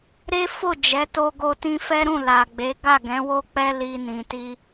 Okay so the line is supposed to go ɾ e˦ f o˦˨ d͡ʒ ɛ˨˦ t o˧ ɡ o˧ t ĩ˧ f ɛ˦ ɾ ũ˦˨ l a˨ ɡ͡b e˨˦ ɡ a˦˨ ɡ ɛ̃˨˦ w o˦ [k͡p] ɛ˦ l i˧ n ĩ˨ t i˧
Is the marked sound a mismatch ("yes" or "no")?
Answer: no